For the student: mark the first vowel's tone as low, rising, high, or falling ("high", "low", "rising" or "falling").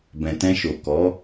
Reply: low